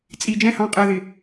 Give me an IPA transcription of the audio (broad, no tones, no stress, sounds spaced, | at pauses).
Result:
t͡sʼ i d͡ʒ ɛ̃ h ɑ̃ qʼ ɜ ð ɪ